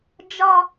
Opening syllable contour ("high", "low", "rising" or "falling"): high